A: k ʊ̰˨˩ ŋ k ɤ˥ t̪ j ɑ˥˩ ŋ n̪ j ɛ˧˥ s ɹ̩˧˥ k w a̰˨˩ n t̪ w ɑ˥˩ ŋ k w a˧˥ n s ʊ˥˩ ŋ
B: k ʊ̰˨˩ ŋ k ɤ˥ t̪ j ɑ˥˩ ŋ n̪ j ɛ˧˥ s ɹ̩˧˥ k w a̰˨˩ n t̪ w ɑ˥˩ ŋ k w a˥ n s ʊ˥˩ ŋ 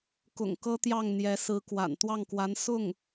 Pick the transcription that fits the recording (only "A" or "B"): A